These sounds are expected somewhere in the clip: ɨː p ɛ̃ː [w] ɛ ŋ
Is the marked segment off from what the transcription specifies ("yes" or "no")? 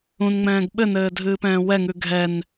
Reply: no